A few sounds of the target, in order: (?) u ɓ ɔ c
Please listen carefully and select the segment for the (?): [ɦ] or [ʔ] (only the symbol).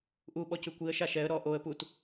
ʔ